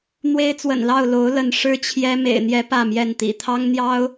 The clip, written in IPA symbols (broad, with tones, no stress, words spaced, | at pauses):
n̪we˦ɪ̯t͡swə̰˨˩nlɑ˥˨ʊ̯ lo˨˦ʊ̯lə˨˦n ʂɻ̩˦t͡ɕʰjɛ˦ mḛ˨˩ɪ̯n̪jɛ˨˦ pä˥˨mjɛ˥˨nt̪ḭ˨˩ t̪ʰɑ˦ŋn̪jɑ˦ʊ̯